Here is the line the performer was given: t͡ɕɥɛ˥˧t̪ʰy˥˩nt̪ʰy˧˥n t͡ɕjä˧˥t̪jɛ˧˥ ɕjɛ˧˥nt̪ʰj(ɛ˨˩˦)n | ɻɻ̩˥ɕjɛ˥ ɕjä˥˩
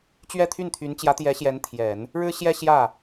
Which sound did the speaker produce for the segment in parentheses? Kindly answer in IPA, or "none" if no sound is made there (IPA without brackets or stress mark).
ɛ˨˩˦